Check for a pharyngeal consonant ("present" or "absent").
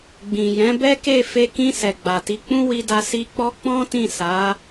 absent